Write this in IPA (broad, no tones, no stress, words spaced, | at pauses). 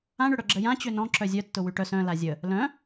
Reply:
ãɳʏɽœ ɡ͡ǁəjã t͡ɕønɔ̃ ǁœzʲœtːʊ wyʈœs œ̃ lazʲə | lœ̃